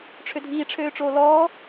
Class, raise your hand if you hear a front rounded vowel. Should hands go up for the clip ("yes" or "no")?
yes